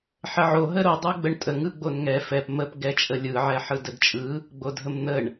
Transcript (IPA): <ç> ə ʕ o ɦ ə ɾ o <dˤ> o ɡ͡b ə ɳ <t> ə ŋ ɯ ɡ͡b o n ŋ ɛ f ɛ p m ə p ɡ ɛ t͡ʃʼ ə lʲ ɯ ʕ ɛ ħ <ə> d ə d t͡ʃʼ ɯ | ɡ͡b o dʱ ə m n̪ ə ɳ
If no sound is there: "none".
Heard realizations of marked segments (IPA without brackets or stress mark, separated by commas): ħ, dˤ, tʼ, ɯ